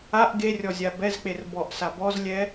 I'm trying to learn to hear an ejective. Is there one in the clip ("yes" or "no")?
no